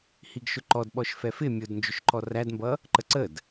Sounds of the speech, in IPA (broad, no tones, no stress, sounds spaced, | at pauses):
h i ɡ ʃ ʊ ǃ ɔ d ɓ ɔ ʃ f ɛ f ɪ mʲ ʊ d n d͡ʒ ʊ ʃ ǃ ɔ r æ d m b ʌ | ǃ ə ǀ ə d